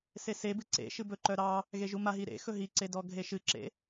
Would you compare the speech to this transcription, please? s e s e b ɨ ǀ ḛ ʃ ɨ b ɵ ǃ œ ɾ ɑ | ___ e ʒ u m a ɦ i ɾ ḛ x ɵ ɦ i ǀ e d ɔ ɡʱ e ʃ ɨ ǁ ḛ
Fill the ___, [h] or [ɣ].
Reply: ɣ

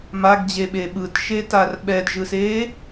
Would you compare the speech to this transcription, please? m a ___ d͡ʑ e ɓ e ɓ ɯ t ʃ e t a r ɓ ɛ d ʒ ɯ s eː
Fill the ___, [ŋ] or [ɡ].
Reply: ɡ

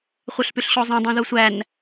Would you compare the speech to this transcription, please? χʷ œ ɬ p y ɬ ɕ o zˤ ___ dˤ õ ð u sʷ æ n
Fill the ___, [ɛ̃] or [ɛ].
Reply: ɛ̃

